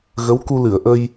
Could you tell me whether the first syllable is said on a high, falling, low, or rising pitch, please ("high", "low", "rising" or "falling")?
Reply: rising